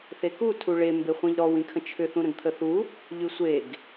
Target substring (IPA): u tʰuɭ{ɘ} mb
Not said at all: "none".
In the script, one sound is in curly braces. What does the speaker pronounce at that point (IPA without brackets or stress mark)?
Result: e